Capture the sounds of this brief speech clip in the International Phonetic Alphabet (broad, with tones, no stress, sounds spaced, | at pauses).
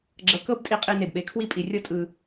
ɡ͡ǁ ɤ˨ k ɤ˦ b tʼ i˧ qʼ i˧ n e˨ b ɓ e˨ kʰ w i˦ pʼ i˨ rʲ ɤ˦ tʼ ɯ˨